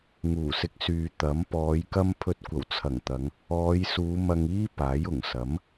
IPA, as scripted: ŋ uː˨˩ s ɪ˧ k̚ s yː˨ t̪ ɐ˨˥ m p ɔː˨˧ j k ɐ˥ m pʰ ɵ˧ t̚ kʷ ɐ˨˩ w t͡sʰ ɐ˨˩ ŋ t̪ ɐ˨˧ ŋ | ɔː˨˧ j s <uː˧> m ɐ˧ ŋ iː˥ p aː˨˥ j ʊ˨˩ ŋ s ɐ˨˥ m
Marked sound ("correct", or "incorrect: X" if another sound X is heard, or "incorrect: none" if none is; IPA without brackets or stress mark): incorrect: uː˨˧